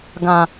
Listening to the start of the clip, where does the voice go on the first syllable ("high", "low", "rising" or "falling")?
low